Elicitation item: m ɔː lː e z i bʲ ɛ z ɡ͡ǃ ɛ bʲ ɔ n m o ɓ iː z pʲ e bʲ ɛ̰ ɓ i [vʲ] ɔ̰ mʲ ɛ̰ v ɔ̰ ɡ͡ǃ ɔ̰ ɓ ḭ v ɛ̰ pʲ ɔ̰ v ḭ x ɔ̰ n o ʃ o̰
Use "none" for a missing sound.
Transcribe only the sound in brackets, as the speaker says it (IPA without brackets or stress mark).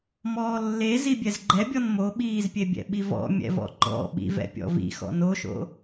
v